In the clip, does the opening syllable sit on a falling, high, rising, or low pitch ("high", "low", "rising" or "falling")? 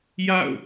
falling